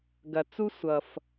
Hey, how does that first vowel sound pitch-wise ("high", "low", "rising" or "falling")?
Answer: low